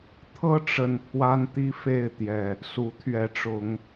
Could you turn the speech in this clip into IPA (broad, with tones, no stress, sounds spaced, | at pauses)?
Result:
t̪ʰ ɤ˦ ʈ͡ʂ ə˨˩ n pʰ w a˦ n t̪ i˦ f e˥˨ ɪ̯ t̪ j ɛ˨˩ | s u˨˦ t̪ʰ ɥ ɛ˨˦ ʈ͡ʂ ʊ˨˦ ŋ